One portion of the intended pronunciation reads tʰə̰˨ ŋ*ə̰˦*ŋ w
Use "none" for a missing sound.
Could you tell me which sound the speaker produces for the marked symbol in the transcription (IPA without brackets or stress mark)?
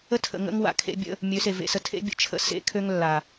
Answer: ə̰˦